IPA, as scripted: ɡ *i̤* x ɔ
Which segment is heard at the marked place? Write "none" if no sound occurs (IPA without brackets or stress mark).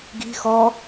i̤